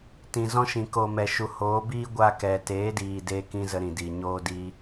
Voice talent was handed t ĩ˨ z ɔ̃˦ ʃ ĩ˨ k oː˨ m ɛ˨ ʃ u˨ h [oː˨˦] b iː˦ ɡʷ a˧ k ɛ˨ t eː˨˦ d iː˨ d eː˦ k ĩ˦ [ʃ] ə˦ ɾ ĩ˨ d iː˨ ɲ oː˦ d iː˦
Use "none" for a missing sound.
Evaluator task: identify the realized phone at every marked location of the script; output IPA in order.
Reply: oː˨˦, z

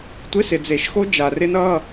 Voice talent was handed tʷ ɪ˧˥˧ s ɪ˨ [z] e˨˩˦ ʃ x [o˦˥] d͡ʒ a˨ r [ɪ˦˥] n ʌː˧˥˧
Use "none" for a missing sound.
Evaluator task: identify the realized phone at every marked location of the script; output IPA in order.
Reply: d͡z, o˦˥, ɪ˦˥

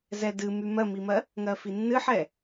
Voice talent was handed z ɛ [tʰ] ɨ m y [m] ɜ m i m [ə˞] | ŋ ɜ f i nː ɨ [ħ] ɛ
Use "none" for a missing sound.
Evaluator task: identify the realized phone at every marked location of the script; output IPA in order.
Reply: d, m, ɜ, ħ

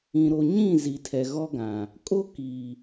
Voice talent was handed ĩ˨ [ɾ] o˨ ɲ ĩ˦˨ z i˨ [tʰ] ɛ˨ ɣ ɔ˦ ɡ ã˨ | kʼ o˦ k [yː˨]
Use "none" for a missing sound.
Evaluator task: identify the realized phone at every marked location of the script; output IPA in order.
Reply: ɾ, tʰ, iː˨

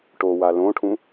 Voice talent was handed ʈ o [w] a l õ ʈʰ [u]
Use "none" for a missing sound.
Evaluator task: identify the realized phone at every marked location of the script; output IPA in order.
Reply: w, ũ

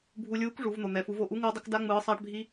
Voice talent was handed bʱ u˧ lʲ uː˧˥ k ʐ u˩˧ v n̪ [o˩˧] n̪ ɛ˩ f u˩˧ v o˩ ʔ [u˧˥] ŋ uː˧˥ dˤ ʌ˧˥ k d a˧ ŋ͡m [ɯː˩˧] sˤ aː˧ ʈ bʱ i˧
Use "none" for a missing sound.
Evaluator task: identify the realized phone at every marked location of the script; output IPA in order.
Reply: o˩, u˧˥, ɯː˩˧

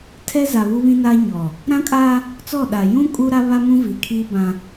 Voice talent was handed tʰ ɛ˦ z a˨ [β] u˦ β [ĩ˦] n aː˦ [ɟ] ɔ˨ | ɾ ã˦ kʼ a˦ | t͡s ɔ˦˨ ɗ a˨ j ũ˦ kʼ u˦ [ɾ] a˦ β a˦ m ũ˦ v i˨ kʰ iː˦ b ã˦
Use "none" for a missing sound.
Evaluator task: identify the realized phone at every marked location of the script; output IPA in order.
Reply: β, ĩ˦, ɲ, ɾ

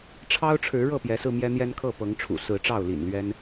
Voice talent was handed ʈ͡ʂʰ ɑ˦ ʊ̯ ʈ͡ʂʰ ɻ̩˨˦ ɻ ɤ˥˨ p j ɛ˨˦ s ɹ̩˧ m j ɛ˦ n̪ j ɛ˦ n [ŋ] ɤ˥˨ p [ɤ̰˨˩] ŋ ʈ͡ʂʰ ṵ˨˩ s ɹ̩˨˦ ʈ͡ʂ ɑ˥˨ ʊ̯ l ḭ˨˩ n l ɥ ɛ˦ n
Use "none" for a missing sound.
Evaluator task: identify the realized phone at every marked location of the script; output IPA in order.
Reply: kʰ, ɤ˨˦

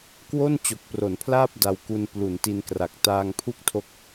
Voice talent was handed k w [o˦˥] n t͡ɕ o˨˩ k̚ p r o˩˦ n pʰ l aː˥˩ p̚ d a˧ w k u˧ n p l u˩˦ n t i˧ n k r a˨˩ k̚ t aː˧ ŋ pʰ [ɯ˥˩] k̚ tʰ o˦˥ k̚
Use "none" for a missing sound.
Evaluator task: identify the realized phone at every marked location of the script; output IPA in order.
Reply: o˥˩, u˥˩

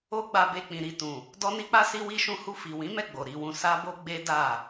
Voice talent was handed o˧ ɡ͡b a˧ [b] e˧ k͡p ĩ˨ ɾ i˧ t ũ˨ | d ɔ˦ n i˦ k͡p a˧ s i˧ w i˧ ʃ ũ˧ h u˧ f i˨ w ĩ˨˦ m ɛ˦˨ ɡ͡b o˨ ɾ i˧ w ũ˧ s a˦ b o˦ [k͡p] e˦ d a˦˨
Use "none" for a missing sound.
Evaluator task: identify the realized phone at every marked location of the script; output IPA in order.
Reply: b, ɡ͡b

